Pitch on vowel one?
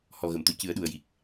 low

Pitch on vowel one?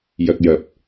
low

